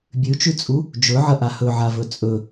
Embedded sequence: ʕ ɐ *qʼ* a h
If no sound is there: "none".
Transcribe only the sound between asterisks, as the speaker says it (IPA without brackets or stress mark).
ʔ